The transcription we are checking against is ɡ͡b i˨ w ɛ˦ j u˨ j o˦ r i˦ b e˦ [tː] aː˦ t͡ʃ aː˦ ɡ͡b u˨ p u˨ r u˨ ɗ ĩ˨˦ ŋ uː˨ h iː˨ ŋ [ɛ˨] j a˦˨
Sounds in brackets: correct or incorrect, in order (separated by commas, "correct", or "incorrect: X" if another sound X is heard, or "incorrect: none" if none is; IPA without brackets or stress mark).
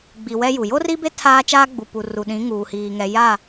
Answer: incorrect: tʰ, correct